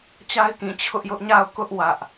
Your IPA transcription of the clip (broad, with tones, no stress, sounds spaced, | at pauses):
t͡ɕ a˦ ɪ̯ k ĩ˨ t͡ɕʰ ʊ˦ ʔ j ʊ˦ ʔ ɲ a˦˨ ʊ̯ k ʊ˦ ʔ w ä˦ ʔ